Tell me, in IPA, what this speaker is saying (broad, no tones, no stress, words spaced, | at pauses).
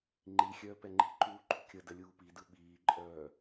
ŋ͡ǃi xʲœːpɛŋ͡ǃi̤ǃuː ǃṳkʲədə lʲuːpidɯ ɓiːǃʼœː